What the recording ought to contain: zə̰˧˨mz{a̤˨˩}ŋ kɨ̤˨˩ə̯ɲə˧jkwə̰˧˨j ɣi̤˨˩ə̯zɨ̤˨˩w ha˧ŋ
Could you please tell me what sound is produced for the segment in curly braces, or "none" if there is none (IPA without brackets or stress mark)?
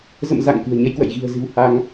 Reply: a̰˧˨